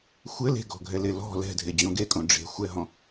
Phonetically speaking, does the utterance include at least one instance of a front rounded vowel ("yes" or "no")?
no